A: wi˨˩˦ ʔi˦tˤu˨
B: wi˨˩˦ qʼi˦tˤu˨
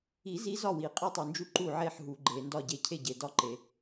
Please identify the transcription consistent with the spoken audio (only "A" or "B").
B